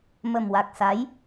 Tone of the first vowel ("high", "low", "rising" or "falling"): low